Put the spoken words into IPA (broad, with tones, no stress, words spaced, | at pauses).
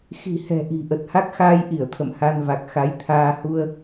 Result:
xi̤˨˩hɛ̤˨˩ ʔi̤˨˩ʔə˨˩t̚ ha˦˥k̚xaː˧jʔi˧˩ə̯ t̪ʰə̰˧˨mha˧nva˨˩k̚ xa˨˦jt̪ʰaː˧ hu˧ə̯